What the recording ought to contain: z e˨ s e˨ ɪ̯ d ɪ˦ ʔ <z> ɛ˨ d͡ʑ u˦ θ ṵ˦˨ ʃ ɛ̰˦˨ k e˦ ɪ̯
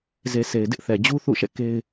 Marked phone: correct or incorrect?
incorrect